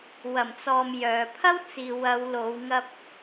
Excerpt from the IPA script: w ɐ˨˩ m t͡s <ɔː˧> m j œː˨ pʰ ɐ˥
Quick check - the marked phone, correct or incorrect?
incorrect